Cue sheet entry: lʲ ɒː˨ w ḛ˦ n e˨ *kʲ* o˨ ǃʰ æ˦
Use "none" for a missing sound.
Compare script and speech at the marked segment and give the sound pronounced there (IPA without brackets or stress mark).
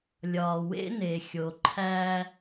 xʲ